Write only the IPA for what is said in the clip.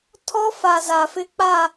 tʰɔ˦fa˨ za˨fɪ˦k͡pa˦˨

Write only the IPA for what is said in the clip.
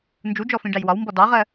nd͡ʒud͡ʒɔfĩ ɖæjwɒwmbɔ dɑʁɜ

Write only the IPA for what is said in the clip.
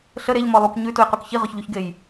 ɬə ɾeʎ mɔlˠuk ɲʉtujquk çiʁɔçʎuçɡej

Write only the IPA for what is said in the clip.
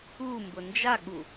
u mbʊnd͡ʒaɠu

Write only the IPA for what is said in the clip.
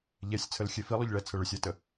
ʎɛsʲt͡sʰəlxʲe filˠʏʎɭɛt͡sʰə ɭʏsʲɛtə

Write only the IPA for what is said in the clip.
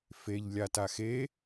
feʎ lʲataxe

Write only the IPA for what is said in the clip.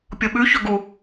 pʲoɓʉ çɵɡu

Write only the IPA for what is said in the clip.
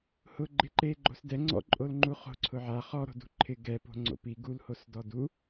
hʊɡ͡ǃɪ ǃeɡ͡ǃo̤s dɛ ŋ͡ǀɔ̰ǃʼolŋ͡ǃu χo̤ǀʰʊ ʕa χɔɾo̤ dṳǃʰɪ ɡɛpo̤ ŋ͡ǀo̰pi ɡulhos dɔdu

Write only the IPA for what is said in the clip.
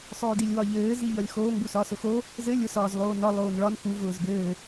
sˤʊːdilʲwɒʎɘː ziʎɒlʲxoːŋ busɒsʊxo | zɘ lʲʊ sɒːzlˠoːnɒ lˠoːnɭɒn xu vʊːzbɘː

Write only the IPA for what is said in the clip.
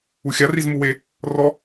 uxʲa rizmuwe | rɔ

